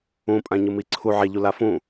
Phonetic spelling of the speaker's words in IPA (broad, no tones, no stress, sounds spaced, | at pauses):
ũ pʼ ã ɲ ɯ m i ǀʰ u ʕ ɛ ʎ u l a f ũ